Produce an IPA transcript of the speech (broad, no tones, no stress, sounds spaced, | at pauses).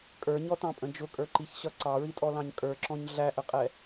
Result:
kʼ ə˞ ɲ ɔ t ɑ̃ pʼ ə̃ d͡ʒ ʊ kʼ ə˞ ǃ i ç ɕ ʌ ǀ ɑ ɹ i tʼ ɔ l ɑ̃ ɲ kʼ ə˞ ǁ ɔ̃ ɲ ɮ æ ʔ ə qʼ ɛ